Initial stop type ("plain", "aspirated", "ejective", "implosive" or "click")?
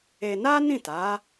plain